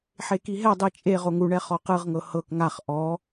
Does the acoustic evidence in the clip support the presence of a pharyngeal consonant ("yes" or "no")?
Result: yes